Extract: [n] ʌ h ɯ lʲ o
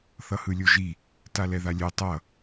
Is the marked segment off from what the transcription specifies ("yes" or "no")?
yes